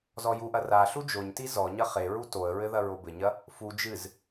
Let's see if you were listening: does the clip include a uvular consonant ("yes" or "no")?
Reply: yes